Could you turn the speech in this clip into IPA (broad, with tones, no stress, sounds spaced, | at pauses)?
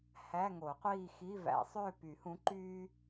h æ˧˥˧ ŋ o˨˩˦ qʷ iː˥˧ x i˧˥˧ v æ̰˨˩˦ sˤ øː˥˧ p y˨˩˦ h ũ˨˥ ǃ yː˥